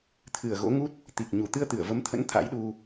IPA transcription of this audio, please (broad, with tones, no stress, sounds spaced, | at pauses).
t̪ʰ ɨ˨˩ ə̯ ɣ o̰˧˥ ŋ u˦˥ t̚ | t̪ i˨˩ k̚ ɲ u˨˩ t̪ ɨ˧ ə̯ t̪ ɨ˧˩ ə̯ v ə˨˦ m t̪ʰ ə̰˧˥ n t̪ʰ a̰˧˥ j ɗ u˧